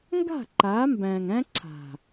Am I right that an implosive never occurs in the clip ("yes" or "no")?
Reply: yes